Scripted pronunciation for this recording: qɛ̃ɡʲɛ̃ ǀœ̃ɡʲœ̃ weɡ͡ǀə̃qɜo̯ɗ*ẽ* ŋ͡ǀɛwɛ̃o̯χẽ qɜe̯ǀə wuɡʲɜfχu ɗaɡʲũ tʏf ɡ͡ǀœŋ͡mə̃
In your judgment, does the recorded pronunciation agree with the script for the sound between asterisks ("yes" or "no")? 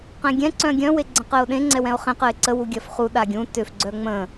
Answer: yes